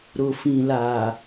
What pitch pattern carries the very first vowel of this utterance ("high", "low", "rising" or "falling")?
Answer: low